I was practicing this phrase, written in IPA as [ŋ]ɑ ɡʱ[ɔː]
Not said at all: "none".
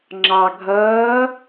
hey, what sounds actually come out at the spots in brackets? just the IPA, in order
ŋ͡ǁ, ʌː

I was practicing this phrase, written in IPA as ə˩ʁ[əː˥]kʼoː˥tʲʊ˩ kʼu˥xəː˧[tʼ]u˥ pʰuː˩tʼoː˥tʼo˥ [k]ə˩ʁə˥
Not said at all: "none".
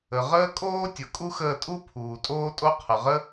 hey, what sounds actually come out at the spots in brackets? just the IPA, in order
əː˥, tʼ, qʰ

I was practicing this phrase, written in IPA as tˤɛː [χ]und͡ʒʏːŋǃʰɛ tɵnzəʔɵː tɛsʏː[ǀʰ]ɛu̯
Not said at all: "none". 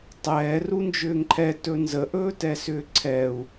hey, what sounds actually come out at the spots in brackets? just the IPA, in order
r, ǀʰ

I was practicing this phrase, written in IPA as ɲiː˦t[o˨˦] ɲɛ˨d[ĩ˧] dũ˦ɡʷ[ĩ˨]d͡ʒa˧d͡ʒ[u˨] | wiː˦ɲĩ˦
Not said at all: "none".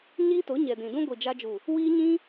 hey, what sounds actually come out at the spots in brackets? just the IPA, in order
o˨˦, ĩ˨, i˨, u˨

